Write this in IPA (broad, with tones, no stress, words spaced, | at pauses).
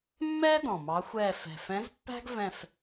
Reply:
mːɛː˥dɔ̃˨˩ mɑ˧˥xʷɛː˦˨ fɛ̤˨˩fɛ̃˧˥zpːæ̤˥ɡ vɛ̃˦˨f